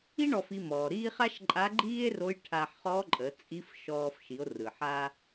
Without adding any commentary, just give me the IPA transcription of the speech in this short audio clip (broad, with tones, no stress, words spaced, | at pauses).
i˥ ɳɔ˧fi˧mɔː˩ɾiː˥ χa˥ʃǃʼa˧˥ɡ͡ǃiː˥e̯ro˧˥j ʈʰa˧ħχɔ˧˥ǃʼə˩˧ t͡sʼi˧˥fʃɔː˧f ʃi˩˧o̯rɯ˩ħa˧